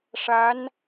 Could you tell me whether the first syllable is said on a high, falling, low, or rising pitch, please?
rising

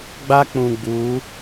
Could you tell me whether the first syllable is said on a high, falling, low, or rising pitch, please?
high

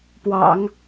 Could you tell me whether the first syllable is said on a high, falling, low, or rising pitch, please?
low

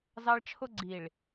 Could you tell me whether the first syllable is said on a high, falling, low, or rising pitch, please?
high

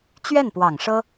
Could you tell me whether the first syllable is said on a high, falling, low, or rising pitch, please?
falling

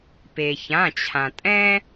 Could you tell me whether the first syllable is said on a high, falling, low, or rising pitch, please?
low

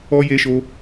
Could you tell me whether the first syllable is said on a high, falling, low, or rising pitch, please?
high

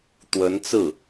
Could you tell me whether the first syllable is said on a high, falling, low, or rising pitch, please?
rising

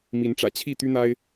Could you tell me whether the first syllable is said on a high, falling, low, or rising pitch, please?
rising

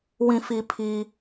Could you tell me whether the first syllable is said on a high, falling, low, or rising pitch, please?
low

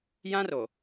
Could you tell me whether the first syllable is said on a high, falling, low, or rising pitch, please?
high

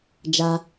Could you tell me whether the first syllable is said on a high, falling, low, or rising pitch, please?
high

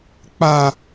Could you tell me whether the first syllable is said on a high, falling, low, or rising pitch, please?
high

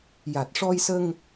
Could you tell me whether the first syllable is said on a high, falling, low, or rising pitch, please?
low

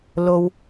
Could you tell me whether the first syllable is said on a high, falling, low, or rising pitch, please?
high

